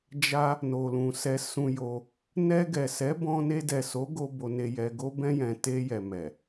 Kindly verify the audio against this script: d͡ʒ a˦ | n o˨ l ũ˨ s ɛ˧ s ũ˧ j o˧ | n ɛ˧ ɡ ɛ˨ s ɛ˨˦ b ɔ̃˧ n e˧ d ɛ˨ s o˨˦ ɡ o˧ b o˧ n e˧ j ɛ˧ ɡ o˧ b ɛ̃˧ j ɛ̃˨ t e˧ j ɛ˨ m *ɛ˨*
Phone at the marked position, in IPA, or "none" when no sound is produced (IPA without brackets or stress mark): ɛ˨